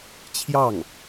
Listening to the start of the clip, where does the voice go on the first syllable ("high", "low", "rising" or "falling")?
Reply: falling